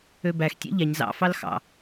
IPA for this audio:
ø b æ x tʲ ḛ ʎ æ ɲ z ɑ̰ f ɑ l x ɑ̰

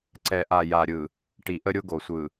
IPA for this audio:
ǀ ɛ˨ ʔ a˨ j a˨ ɾʲ ɯ˨ | ʈ i˨ ʔ ə˦ ɾʲ ʊ˦ ɡ o˨ sʷ ɯ˨

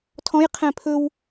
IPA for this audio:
tʰ ɔ̃ j qʰ ɛ̃ pʰ ɵ w

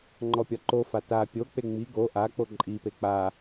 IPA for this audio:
ŋ͡ǃ ɔ pʲ ɒ ǃ o f a t a pʲ o k͡p e ŋ͡m i ɡ o ʔ a k͡p o ǃʼ i p e k͡p a

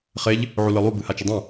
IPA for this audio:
χ e ʎ | ʕ u l ɨ lˠ u b ɨ h a t͡ʃ ɨ dˤ ɐ̃

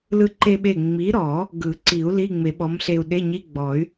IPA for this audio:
l ɯ˧ ǃ e˧ ɓ e˧˩ ŋ͡m i˨˥ ɾ ɔ˨˩˦ | ɡ ɯ˨˩˦ ǀ i˨˩˦ u̯ l i˧˥˧ ŋ͡m e˨˩˦ ɓ ɔ˨˥ m ɬ e˧ u̯ ɗ e˧˥˧ ɲ i˧˥˧ ɡ͡b ɔ˨˩˦ y̯

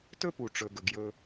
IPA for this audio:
t ɵ˦ p u˨ ʈ͡ʂ ɵ˨ ɡ ɵ˨ ɡ j ɵ˧

